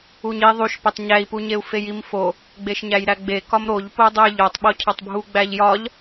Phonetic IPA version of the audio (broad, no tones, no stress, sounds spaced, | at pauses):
u ɲ i ðˤ u ʃ p e tˤ ɲ æ i̯ p u ɲ e u̯ f e j i m f o | ɡ͡b e ʃ ɲ æ j ɾ æ ɡ͡b e k ɒ m ɾ o ʎ p o u̯ dˤ u j ʎ o tˤ ɓ o cʰ ɒ tˤ bʱ u ɡ͡b æ ʎ j ɒ ʎ